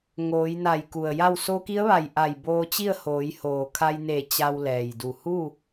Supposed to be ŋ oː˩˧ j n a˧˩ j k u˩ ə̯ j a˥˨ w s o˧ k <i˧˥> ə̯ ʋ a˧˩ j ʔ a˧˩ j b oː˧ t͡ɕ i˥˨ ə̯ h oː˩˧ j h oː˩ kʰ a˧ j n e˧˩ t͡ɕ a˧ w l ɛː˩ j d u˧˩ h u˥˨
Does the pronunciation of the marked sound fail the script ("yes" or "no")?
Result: no